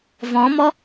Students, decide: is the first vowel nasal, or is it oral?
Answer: nasal